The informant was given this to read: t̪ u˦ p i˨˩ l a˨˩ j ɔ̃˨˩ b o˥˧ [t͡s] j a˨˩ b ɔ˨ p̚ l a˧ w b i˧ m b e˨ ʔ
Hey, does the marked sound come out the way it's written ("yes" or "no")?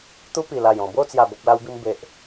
yes